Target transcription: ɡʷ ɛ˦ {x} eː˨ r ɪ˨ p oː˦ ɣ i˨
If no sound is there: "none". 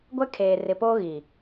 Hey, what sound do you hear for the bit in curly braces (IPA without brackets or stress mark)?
kʰ